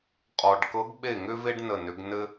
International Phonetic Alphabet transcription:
qʼ ɔ˨˩ ɖ k ɤ˧˥ ɡ ɓ e˥˩ ŋ ʏ˥ v e˥ ɖ n ə˥˩ n ʏ˧˥ ɡ n ɘ˥

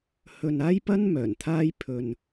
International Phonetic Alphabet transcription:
h ɵ˧ n aː˥ j p ɐ˥ n m œː˨˩ n t̪ʰ aː˥ j pʰ ɵ˧ n

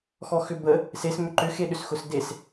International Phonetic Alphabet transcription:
x ɔ x ʏ b ə | s e s m ʏ ǃ ʏ x e ɗ ʏ s x ʊ s d e s

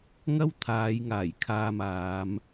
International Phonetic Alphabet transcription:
ŋ ɐ˥ w t̪ʰ aː˨˧ j ŋ aː˨˩ j kʰ aː˧ m aː˨˧ m

